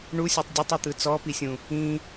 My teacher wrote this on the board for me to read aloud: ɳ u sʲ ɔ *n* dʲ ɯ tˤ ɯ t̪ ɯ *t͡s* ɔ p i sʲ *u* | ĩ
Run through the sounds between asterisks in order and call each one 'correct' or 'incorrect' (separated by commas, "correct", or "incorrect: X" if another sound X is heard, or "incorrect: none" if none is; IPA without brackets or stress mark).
incorrect: tˤ, correct, incorrect: ũ